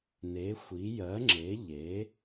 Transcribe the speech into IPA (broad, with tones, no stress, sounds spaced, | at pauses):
n e˨˥ xʷ i˨˥ j ɜ˨˥ ŋ͡ǁ e˨˥ ʎ e˨˥